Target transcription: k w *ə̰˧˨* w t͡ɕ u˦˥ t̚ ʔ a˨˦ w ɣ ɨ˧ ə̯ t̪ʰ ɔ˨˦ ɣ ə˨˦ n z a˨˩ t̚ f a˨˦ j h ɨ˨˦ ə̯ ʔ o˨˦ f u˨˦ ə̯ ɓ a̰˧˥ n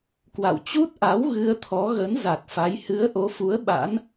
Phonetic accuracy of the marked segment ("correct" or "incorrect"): incorrect